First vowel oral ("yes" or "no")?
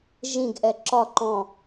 no